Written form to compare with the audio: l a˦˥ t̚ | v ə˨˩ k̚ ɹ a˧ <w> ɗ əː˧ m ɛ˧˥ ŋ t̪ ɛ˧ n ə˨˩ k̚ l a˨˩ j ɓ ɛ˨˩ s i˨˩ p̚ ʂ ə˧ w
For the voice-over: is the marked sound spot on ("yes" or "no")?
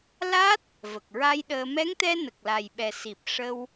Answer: no